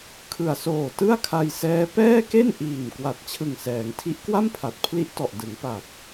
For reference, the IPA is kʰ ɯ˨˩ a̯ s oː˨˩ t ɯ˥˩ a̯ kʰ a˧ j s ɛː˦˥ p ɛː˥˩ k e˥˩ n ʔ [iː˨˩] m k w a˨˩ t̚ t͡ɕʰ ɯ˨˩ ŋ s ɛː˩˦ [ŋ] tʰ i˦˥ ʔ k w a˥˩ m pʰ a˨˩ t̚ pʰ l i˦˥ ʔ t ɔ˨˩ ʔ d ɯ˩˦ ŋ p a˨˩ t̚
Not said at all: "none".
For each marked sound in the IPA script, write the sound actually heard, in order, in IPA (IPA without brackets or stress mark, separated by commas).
iː˨˩, ŋ